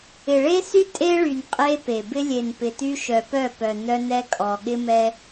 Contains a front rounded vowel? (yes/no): yes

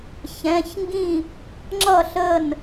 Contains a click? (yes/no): yes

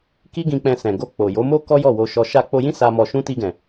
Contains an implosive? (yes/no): no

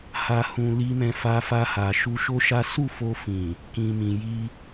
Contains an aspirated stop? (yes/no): no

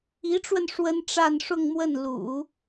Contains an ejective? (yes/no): no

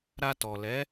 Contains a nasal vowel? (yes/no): no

